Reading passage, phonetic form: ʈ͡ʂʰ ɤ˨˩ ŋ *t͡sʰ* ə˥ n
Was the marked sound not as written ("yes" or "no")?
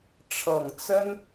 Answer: yes